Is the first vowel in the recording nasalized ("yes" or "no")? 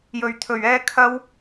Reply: no